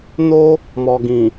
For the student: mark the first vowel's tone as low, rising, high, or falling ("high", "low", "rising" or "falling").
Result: high